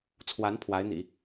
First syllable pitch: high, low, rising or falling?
rising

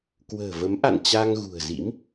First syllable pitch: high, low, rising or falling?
low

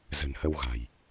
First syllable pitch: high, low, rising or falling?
low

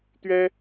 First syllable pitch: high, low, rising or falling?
high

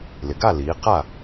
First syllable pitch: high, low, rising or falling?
low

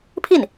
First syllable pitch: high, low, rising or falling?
falling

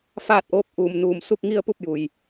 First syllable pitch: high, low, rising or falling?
falling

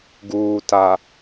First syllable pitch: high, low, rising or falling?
low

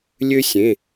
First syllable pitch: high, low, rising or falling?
high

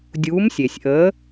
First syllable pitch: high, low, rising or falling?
rising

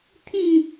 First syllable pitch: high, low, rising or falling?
falling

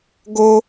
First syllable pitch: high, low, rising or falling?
high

